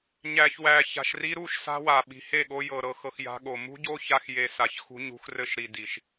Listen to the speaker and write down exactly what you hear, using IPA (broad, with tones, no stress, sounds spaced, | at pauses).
ɲ æ˨ ç w æ˨ ç a̤˨ ʃ r i˧ ɾ u˦˨ ʃ s a̤˦ w a˨ ɓ i̤˨ h e˦˨ ɠ o˧ j ɤ˨ ɾ ɤ˨ x ɤ˨ x j a̤˧ ɠ o˨ m ṳ˦ ɟ o˦ ç a˧ x j e˨ s a˨ ç x ṳ˧ ɲ ṳ˧ x r ɘ˧ ʃ ɾ i˨ d i˨ ʃ